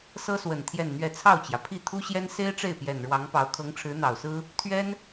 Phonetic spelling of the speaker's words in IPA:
sɤ˥swə˨˩n t̪ʰjɛ˥˧nn̪ɥɛ˥˧ t͡sʰɑ˥˩ʊ̯t͡ɕjä˩pʰi˥˩ t̪ʰu˥ɕjɛ˥n se˥ɪ̯ʈ͡ʂe˥˩ɪ̯pjɛ˨˩n ɻwɑ˧˥ŋpɑ˧˥ʊ̯ kʰɤ˧˥ŋʈ͡ʂʰɻ̩˧˥n̪ɑ˨˩ʊ̯sɹ̩˥ | t̪ʰɥɛ˥n

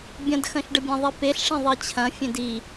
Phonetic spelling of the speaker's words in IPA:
bʲɐ̃dxɐ̃ʃɖəbʲẽ ðˤipeɬʂẽ ðˤit͡ɕʰɐ̃ fʲẽdi

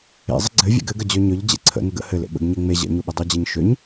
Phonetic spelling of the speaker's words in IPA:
ḛzˤə ɡ͡ǀɘ vʲḛɡɘɡə d͡ʑøɲøʎ d͡ʑḛǀʰə̰ nəɡə̰ hɘlḛ ɓə̰ɡ ɲeŋ͡me ʑə̰ɲuɓə dˤud͡ʑeɲʃøɲ

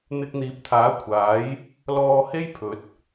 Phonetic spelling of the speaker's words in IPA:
n̪ɪ˧k̚n̪iː˨˥p̚t̪ʰaː˨˥kʷʰaː˨˥j | lɔː˧he˥jpʰɵ˨˥t̚

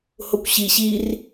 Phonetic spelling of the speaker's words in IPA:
hokʷɕi ɕir

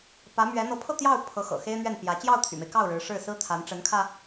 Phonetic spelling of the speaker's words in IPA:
pä˧˥mɥɛ˧˥ n̪ɤ˧˥pʰɤ˥˧t̪jɑ˥˩ʊ̯ pʰɤ˧˥xɤ̰˨˩ xe˥ɪ̯n̪ɥɛ˥˩npjä˧˥ t͡ɕjɑ˥˩ʊ̯t̪ʰy̰˨˩me˦ɪ̯kɑ˥˩ʊ̯ ɻɻ̩˧˥ʂɻ̩˥˩ sɹ̩˥t̪ʰa˧˥n ʈ͡ʂə˧˥nkʰä˧

